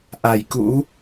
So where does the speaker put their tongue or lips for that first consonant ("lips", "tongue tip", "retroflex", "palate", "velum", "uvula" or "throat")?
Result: throat